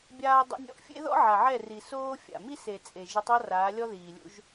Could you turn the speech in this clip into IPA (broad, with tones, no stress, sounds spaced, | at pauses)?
bʲ aː˦ dˤ ḛ˦ nʲ ɔ̰˦ ʔ fʲ ḛ˦ ð ɔ̰˦ ʕ a˨ ʕ ɛ˦˨ r i˨ s oː˦ fʲ a̰˨ m i˦ s e˨ t͡sʼ e˨ ʒ ɯ˨˦ tˤ ɔ˦ r aː˨˦ lʲ ɔ˦ ð iː˨ lʲ ṵ˦ ʒ